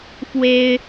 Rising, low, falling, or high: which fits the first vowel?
high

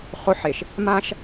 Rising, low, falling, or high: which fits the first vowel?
high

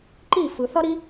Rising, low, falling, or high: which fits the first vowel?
falling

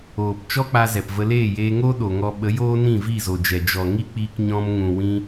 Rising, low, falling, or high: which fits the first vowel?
low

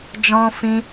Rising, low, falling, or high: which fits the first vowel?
high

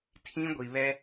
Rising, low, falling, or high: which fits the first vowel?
high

